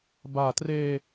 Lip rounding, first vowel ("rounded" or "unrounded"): unrounded